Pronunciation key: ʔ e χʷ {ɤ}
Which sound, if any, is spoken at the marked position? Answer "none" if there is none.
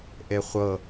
ɤ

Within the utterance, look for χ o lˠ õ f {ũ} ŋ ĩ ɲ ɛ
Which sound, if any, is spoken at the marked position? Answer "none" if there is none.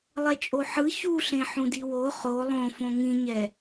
õ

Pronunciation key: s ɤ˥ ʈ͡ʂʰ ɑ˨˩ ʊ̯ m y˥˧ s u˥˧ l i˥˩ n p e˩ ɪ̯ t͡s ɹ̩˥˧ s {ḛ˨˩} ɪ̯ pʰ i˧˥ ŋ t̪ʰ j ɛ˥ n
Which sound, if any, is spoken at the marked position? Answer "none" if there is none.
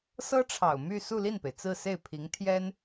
e˥˩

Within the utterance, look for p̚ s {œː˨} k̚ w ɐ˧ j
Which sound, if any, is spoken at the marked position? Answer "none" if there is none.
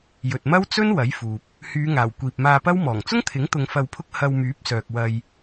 œː˨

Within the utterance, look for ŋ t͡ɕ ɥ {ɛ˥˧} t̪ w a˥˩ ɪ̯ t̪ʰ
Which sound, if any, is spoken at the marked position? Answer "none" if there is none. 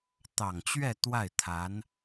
ɛ˥˧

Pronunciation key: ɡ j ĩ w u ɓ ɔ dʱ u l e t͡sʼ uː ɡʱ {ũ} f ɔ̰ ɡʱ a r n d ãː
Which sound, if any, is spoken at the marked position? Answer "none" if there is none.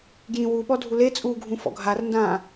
ũ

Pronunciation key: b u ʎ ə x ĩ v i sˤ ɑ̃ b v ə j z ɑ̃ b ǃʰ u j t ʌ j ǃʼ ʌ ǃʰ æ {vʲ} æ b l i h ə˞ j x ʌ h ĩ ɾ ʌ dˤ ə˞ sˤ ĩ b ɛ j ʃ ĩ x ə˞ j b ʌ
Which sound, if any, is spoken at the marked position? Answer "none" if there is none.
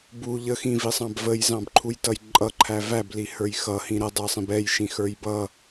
v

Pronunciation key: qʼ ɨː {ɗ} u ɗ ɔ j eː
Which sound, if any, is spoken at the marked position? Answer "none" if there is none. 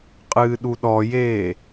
ɗ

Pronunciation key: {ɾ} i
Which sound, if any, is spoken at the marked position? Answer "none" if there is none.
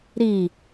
ɾ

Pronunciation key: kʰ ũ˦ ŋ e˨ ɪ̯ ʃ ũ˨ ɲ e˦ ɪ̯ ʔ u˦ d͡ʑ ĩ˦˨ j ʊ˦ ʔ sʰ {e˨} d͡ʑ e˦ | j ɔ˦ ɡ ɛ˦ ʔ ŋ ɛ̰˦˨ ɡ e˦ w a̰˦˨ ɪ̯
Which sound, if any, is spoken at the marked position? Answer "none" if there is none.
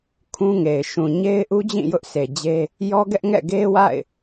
e˨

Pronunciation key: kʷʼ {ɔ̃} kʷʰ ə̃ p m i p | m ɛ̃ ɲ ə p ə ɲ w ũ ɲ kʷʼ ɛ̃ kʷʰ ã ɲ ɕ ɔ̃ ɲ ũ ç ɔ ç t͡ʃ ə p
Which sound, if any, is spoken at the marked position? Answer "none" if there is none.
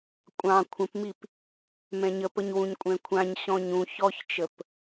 ɑ̃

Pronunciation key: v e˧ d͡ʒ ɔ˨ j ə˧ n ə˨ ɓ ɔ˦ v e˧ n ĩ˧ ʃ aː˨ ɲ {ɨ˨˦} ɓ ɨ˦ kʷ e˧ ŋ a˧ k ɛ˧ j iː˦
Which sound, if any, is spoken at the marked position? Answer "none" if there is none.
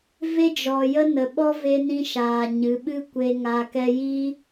ɨ˨˦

